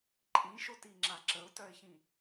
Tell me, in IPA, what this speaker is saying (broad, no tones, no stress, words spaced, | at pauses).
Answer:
ǃʼĩʃotiŋ͡ǁa ǁəʊ̯tœɪ̯çĩ